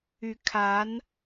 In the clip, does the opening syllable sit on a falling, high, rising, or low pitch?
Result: rising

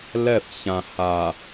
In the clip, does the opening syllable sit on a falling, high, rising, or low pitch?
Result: falling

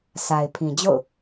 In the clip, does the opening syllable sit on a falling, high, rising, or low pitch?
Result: low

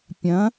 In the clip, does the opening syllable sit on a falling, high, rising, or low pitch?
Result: rising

